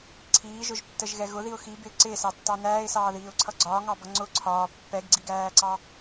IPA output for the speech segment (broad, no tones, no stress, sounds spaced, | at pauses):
ǀʰ iː ʒ ʊ ʒ tː ə ʒ ɣ ɛ ɣ ʊ ð i ʊ̯ x i b ɪː ǀ ɪː s ɑ tː ɑ n æː ɪ̯ s ɑː ð iː ʊ̯ ǀʰ ʌ ɡ͡ǀ ɒː ŋ ɑ b ʌ ŋ͡ǀ ʊ ǀʰ ɒː pː ɛ ɡ ɡ͡ǀ i ɡ æː ǀ ɑ